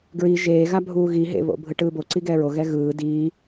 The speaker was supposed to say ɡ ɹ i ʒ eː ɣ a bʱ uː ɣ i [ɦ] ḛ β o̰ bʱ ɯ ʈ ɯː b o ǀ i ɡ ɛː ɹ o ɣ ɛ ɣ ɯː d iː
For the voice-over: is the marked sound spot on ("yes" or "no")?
yes